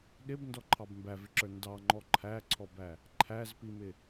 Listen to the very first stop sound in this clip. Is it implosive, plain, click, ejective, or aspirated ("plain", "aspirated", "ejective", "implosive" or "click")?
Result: implosive